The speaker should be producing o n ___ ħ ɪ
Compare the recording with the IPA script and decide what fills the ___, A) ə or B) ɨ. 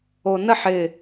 A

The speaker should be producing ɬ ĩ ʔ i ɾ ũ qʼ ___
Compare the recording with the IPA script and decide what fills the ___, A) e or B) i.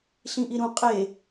A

